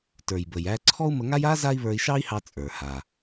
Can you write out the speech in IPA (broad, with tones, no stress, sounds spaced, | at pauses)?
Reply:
t ə˞˩ j b ə˩ j æ˧ ǀʰ ɔ˥ u̯ m ə˧ ŋ a˥ j a˥ z a˥ i̯ β ə˞˧ i̯ ʃ ɑ˥ i̯ h ɑ˧ t͡sʼ ə˞˩ h a˩